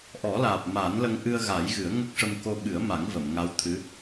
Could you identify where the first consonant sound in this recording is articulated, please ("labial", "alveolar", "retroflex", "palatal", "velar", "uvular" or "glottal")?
glottal